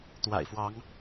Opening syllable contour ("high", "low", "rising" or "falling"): low